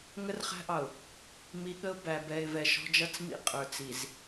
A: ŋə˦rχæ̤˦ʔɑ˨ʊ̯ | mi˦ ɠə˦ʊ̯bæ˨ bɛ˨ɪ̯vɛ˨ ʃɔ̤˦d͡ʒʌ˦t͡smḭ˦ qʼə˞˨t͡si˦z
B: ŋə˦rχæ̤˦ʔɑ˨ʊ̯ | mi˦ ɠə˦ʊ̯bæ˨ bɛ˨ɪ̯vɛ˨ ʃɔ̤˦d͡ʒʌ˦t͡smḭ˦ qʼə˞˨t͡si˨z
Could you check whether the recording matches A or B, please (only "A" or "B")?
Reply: B